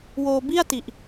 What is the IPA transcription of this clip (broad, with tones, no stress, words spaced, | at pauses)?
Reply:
woː˧bi˥˩a̯ ti˨˩ʔ